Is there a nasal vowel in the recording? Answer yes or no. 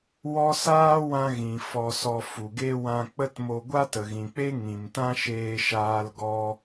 yes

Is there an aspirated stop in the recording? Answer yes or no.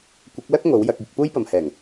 no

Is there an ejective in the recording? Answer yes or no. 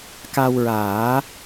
no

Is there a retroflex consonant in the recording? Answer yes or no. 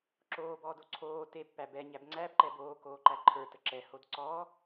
no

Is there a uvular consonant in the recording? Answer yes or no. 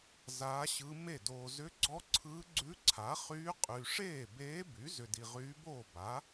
yes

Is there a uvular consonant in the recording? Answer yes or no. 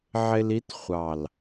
yes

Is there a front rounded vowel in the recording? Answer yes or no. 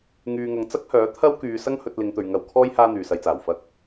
yes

